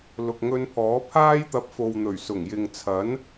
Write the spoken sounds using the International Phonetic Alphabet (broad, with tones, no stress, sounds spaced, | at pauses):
l ʊ˨ k̚ ŋ ɵ˧ n pʰ ɔː˨˥ pʰ aː˥ j t̪ ɐ˧ p̚ f o˨ w n̪ ɵ˨˩ ɥ s ʊ˨˩ ŋ j ɪ˨ ŋ t͡sʰ ɐ˨˥ n